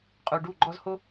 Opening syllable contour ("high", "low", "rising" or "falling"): low